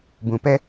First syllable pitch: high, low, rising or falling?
low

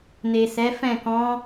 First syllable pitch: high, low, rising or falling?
low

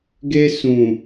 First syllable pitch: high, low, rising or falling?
high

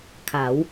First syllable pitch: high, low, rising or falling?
rising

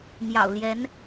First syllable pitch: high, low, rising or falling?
low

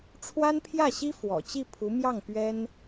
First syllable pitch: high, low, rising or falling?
high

